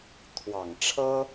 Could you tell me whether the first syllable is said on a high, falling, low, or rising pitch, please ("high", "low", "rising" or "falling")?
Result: low